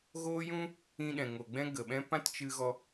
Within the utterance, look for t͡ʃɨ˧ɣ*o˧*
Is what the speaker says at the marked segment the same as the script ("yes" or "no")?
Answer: no